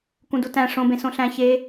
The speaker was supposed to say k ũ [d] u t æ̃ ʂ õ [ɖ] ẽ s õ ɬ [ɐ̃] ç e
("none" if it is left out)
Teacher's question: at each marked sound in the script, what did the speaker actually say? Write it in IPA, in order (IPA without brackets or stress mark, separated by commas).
d, b, æ̃